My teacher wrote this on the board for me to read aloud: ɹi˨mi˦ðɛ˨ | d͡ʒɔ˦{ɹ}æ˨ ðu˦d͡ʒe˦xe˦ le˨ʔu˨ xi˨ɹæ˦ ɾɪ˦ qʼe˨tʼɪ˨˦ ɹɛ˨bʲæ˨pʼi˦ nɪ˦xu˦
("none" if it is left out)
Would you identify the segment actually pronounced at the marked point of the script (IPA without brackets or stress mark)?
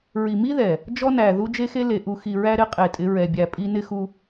n